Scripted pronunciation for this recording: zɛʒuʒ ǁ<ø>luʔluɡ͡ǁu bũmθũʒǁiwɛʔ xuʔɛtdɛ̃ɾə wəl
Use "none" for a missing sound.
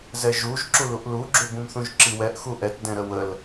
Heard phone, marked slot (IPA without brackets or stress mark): u